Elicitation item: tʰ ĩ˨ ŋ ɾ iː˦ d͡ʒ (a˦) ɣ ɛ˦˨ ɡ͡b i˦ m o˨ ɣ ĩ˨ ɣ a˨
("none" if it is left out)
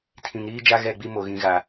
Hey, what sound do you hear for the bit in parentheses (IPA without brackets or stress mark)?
a˦